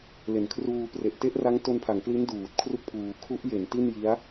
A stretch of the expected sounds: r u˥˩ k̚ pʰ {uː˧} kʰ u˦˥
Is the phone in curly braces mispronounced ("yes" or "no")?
no